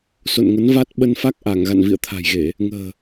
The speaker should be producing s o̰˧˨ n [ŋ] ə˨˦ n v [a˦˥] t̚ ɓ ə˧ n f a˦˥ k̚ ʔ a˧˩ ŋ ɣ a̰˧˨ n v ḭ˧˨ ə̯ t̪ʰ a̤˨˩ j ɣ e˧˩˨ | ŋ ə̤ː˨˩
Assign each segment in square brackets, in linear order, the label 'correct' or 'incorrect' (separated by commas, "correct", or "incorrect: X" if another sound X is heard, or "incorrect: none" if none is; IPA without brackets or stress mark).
correct, correct